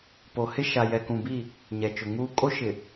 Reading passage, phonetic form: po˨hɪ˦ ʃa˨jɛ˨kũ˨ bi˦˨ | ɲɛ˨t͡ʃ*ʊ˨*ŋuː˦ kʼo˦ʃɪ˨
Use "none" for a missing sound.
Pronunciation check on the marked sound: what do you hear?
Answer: ʊ˨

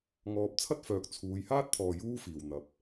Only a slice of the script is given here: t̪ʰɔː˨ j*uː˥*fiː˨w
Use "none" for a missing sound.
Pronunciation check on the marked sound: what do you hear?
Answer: uː˥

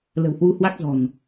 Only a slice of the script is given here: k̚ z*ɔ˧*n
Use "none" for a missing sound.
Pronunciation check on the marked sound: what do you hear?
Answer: ɔ̤˨˩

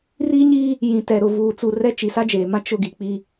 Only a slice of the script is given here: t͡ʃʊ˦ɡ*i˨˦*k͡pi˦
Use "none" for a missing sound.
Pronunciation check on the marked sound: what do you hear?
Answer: i˨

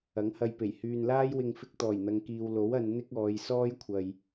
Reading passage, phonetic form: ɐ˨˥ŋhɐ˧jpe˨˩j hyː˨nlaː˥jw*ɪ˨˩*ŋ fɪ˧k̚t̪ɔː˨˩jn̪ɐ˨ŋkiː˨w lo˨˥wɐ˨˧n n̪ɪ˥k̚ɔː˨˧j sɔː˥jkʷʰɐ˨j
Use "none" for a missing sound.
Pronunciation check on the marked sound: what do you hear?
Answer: ɪ˧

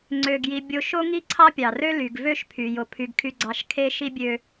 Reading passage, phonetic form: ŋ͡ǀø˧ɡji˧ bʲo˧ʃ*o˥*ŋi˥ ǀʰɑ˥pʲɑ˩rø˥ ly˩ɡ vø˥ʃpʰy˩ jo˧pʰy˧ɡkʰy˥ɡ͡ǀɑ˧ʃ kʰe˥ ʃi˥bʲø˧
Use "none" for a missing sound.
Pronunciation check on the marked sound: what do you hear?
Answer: o˥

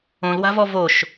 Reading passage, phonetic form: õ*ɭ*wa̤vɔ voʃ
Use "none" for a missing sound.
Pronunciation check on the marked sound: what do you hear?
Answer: l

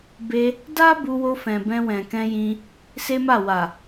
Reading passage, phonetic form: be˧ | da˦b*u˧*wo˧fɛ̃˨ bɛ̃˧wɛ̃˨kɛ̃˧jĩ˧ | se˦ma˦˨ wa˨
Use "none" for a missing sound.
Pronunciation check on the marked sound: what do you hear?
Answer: u˧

